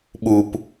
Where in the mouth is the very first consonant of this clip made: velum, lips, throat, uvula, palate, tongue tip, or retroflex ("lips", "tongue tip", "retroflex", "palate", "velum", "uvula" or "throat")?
lips